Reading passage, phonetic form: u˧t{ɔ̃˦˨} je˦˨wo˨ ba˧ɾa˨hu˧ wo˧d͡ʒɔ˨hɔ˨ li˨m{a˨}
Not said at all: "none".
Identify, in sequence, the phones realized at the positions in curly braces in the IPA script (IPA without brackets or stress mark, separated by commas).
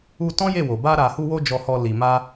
ɔ̃˦, a˧